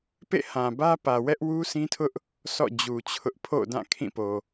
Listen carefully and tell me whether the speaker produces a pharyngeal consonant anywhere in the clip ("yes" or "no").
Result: no